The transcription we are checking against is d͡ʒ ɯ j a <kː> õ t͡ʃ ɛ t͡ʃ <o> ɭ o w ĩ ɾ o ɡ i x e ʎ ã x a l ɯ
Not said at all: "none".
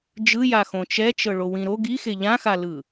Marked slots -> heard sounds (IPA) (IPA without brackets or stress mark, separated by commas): x, ɤ